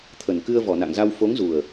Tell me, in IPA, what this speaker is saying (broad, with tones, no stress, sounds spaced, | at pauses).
t̪ʰ ə˨˩ n k ɨ˧ ə̯ v ɔ˧˩ n a̰˧˨ ŋ z a˧ w f o˨˦ ŋ z u˨˩ ə̯